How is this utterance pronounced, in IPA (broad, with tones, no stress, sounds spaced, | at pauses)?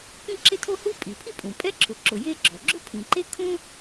k ĩ˥ ǁ ɪ˥ tʰ o˥ h u˥ pʼ i˩ pʰ i˥ pʼ ũ˩ pʼ ɛ˥ ǁʰ ʊ˩ ǁ ʊ˩ j e˥ ɡ͡ǁ ɔ˩ ɡ͡ǁ ʊ˥ pʰ ĩ˩ ǃ e˥ kʰ ũ˥